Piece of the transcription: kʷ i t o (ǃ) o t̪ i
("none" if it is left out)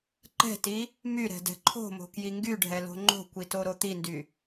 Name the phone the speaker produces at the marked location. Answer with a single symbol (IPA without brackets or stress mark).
ɾ